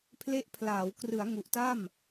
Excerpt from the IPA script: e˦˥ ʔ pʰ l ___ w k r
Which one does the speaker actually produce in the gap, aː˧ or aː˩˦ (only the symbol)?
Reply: aː˩˦